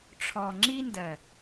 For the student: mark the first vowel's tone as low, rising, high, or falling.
low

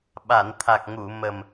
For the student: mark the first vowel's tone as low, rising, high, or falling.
low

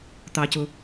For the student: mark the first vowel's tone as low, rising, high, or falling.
low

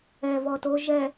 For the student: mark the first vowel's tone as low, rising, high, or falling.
low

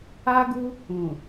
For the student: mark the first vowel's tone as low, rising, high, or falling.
high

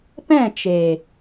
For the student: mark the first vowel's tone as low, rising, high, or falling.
falling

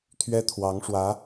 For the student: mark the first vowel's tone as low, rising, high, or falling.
high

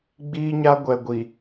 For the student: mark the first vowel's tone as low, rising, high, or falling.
high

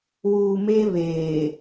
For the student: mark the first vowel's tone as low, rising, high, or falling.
low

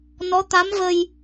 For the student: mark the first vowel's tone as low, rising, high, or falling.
rising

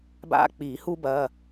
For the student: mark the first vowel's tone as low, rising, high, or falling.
high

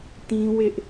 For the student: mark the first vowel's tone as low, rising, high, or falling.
high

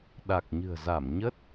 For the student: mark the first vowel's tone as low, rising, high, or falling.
low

